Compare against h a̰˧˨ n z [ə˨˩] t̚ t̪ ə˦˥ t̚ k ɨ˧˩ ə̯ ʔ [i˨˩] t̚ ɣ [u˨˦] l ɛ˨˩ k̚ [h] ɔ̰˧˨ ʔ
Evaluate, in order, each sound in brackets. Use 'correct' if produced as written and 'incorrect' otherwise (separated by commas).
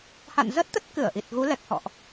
incorrect, correct, correct, correct